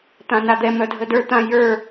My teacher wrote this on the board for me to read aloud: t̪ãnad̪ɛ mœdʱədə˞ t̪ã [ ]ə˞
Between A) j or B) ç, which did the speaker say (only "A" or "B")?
A